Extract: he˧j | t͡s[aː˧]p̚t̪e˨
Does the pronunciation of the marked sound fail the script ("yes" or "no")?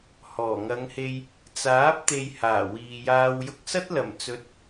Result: yes